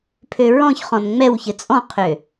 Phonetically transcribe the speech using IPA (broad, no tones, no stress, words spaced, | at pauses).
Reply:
pʰøɹɔ̃çχɔ̃n ŋ͡mɛwçɘ t͡sʼɔ̃qʰø